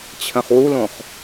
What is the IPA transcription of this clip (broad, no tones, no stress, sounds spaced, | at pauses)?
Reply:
t͡ɕʰ ə̃ χ w u l õ χ